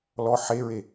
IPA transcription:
lɔ ħeɹe

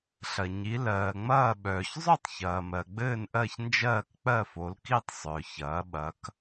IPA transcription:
ɬɐ˩ ɲi˩˧lɜː˩ŋ͡mɐː˦˨ ɓœː˩çzˤœ˦˨tˤçɐː˩mɜ˩ ɡ͡bɘː˦˨nʔɜ˦˨çnd͡ʒɜː˦˨k k͡pɜ˦˨fo˩˧lki˦˨tˤ sˤœ˩ çɐː˩˧ɓɐ˩˧k

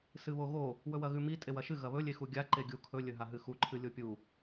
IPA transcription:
sɨβoɣo | wɵwɐɣʉmi tʼewɐʃɨ ɣɐβɵ lʲexuɡʲa ǃeɡʲu kʰɵ lʲɵɦaɦɨxu ǃʰɨlʲopʲu

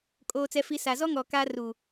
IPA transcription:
kʼoː˨t͡sɛ˨fi˨ sa˨zɔ˦ ŋɔ˨ ka˦ ru˨

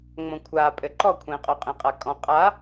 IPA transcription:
ŋ͡mõkʷʰa pʼɘǃɔkʷʰẽ qʼoqʼẽqʼakʼɔ̃ qʼa

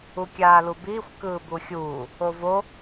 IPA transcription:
ukʲaːlubiːxʷ kɯːbuxʲuː | ovo

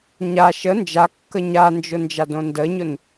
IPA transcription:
ɲa ʃə nd͡ʒakːə ɲand͡ʒʊ nd͡ʒadõndəɲʊn

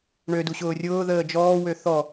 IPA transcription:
ɳødu ɕʊːrʲʊːðəː d͡ʒɔːwø θɔ

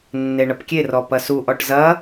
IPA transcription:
nːeɳɐpkʲerɔ pɐsuʔɔʈ zɐ

